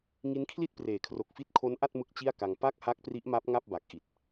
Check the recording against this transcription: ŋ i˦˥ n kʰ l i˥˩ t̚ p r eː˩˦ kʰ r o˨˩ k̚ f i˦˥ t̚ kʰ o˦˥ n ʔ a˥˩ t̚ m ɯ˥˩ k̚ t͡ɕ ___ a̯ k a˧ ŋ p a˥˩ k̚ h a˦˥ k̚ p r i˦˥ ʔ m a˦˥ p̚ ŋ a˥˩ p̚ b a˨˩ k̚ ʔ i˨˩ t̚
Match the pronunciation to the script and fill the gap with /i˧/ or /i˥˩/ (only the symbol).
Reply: i˥˩